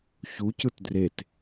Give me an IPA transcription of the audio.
ç u c ɯ t d r e t

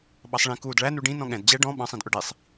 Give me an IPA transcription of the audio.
ɓ ɑ sˤ ɭ ĩ k uː d ɭ æ n u ɖ ĩ n ɔ̃ ɠ ɛ̃ d d͡ʑ ɛ ɖ ɔ̃ ɓ ɑ̃ sˤ ĩ d ʔ ʊ ɖ i sˤ

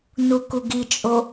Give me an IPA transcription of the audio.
n u k u ɡ i t͡ʃʼ o

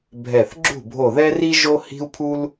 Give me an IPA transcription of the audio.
bʱ ɛ˧˩ θ ɡ͡ǁ ṳ˥˩ bʱ o˧˩ ð ɛ˥ r i˥ ʒ o˥ h i̤˥ u̯ pʰ u˥ l

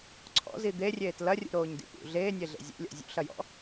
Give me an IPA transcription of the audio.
ǀʰ ɔ̰ z i d̪ e rʲ eː t l ɐ rʲ ṵ ɾ oː ɲ d ḭ p ṵ ɮ eː nʲ e ɮ ḛ zʲ ḛ lʲ ɔ̰ zʲ ṵ ɬ ɐ j ɔ̰

